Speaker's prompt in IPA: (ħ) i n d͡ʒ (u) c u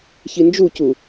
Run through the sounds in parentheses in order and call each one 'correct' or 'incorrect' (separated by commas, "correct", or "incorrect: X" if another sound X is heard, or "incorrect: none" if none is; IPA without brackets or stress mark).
incorrect: ç, correct